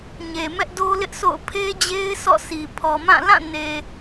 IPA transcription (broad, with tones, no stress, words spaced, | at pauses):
ɲe˨mɛ˦ʔ do˦ lɪ˦ʔsʰo̰˦˨ʊ̯ pʰe˦d͡ʑe˦ɪ̯ sʰɔ̰˦˨sʰi˨ pʰɔ˨mã˦˨ lã˦˨ne˨